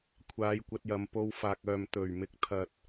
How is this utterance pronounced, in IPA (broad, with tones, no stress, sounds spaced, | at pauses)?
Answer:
kʷʰ aː˨˧ j kʷ ɐ˧ t̚ j ɐ˨ m p o˧ w f aː˨ k̚ œː˨ m t̪ ɵ˨˩ ɥ m ɪ˨˥ k̚ t̪ʰ ɐ˨ t̚